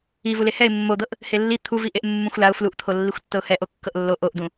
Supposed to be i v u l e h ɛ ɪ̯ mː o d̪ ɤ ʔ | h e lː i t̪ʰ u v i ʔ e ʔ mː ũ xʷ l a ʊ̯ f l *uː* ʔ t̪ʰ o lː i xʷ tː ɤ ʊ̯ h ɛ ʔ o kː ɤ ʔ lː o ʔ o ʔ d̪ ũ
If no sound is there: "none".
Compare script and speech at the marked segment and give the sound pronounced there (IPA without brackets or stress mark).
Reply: u